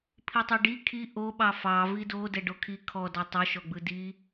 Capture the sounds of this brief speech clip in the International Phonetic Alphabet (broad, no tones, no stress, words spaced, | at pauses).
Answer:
pʰitˤɛɖi kʰi ʔoɓɑ fɑ vido dɛɖokʰi kʰɔdɑ tˤoʃɔɡ͡bɯ di